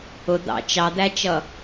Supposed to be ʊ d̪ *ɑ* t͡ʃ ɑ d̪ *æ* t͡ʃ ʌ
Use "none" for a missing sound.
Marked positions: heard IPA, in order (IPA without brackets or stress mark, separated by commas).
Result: ɑ̰, æ